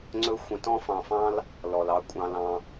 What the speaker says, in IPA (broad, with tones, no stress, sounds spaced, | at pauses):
ŋ͡ǀ ɵ˦ xʷ ə̃˧ t ɔ̃˦ f ɑ̃˧ f ɑ̃˦ l | l ɔ˨ l ɑ˧ kʷʼ ɑ̃˧ l ɑ̃˧